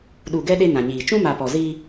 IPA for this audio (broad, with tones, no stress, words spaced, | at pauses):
ɗu˨ɡɛ˦ ɗe˦nã˨ɲiː˨ t͡ʃũ˦ma˨ pɔ˨ zi˦